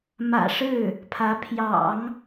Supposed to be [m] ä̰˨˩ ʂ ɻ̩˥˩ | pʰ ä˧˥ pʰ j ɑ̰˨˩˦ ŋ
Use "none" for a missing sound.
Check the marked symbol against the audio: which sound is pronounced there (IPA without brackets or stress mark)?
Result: m